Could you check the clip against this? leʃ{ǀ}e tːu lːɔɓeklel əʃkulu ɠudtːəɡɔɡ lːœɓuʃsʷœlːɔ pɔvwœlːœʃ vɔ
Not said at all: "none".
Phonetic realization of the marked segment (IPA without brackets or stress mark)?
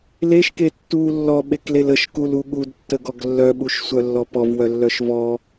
k